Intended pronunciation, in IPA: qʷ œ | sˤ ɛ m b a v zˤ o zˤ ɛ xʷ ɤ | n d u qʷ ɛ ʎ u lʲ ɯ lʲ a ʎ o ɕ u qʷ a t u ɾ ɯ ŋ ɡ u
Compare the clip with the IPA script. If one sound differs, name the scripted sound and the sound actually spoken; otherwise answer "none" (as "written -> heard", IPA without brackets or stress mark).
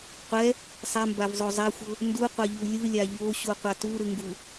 œ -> ɛ